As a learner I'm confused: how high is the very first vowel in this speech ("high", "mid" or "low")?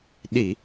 high